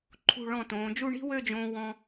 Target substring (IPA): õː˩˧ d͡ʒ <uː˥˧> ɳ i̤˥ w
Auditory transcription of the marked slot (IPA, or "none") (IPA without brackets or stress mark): u˥˧